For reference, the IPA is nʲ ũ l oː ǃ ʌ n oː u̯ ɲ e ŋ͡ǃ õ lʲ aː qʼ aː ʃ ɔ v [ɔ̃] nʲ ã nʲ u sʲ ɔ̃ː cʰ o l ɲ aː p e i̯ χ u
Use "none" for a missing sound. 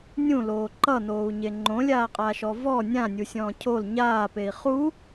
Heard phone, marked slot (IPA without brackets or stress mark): ɔ